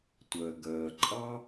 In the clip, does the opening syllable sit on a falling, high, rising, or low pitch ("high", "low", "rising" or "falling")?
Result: low